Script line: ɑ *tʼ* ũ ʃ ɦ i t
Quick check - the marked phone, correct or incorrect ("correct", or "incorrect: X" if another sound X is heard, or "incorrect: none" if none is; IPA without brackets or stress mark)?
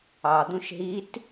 incorrect: d̪